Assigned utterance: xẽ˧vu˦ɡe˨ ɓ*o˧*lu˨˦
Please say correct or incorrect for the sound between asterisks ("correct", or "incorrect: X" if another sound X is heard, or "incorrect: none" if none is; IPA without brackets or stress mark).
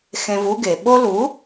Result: correct